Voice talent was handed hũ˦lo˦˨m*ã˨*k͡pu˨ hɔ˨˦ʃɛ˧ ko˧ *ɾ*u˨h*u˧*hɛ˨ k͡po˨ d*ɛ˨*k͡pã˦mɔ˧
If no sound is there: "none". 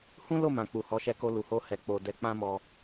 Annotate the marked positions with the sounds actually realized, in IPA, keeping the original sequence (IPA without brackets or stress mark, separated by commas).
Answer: ã˨, l, o˧, ɛ˧